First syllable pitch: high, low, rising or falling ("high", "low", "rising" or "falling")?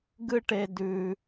high